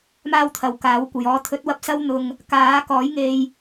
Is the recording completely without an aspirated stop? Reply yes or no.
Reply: no